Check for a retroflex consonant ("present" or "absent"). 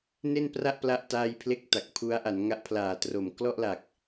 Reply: absent